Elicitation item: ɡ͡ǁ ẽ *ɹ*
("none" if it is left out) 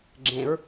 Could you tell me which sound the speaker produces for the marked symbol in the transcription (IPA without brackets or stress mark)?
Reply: ɹ